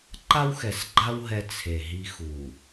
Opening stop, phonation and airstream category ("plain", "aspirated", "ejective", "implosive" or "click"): click